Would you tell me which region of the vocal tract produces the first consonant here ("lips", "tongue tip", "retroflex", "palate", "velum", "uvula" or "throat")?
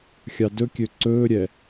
velum